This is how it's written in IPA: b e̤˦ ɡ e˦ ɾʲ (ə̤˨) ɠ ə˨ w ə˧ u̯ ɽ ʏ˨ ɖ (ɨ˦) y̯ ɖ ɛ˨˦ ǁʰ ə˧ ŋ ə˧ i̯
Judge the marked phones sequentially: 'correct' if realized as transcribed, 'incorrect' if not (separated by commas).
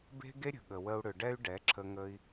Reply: correct, incorrect